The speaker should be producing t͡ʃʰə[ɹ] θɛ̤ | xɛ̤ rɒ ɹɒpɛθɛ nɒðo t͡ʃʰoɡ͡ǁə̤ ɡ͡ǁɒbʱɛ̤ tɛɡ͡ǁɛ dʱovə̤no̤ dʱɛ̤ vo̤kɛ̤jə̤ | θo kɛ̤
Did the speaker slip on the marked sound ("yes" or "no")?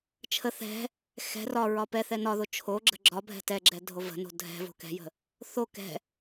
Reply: yes